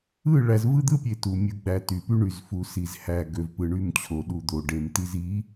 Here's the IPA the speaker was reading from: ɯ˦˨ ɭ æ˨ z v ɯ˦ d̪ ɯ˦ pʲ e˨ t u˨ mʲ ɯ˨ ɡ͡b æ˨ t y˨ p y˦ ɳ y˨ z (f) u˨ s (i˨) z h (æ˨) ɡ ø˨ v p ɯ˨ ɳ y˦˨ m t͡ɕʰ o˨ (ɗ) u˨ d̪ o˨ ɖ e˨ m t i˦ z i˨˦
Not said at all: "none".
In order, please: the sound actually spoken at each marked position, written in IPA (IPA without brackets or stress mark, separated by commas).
f, i˨, æ˨, ɗ